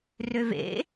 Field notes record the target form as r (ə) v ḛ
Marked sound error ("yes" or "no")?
yes